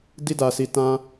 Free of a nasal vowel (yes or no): no